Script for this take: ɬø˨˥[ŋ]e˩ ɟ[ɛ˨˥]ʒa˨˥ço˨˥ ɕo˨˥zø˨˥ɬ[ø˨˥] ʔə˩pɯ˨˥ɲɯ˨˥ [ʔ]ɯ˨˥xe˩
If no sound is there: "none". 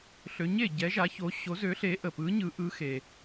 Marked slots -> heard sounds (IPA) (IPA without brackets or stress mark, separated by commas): ɲ, ɛ˨˥, e˨˥, ʔ